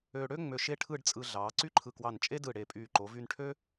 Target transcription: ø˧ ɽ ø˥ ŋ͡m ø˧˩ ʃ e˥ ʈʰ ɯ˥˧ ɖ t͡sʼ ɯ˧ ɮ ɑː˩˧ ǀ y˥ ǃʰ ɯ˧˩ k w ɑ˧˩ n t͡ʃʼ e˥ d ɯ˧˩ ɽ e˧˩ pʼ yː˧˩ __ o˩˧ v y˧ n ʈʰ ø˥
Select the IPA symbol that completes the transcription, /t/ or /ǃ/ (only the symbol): ǃ